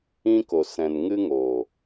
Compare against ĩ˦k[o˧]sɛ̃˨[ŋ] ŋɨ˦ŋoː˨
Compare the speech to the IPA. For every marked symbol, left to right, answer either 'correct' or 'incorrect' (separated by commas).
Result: incorrect, incorrect